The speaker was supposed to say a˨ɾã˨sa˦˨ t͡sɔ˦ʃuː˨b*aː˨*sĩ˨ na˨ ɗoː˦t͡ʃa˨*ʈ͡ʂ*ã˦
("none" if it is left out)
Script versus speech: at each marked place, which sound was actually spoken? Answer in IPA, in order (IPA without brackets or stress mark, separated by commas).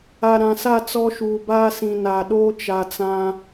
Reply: aː˦, t͡s